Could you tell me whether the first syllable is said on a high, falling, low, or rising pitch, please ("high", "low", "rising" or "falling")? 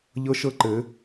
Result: high